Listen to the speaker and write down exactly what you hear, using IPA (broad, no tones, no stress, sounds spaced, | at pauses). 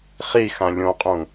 χ i x ã lʲ õ qʼ ũ